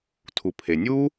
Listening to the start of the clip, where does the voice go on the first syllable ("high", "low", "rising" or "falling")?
low